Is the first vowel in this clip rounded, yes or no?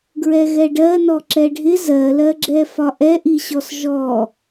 no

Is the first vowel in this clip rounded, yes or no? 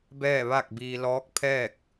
no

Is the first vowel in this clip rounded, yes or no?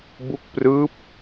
yes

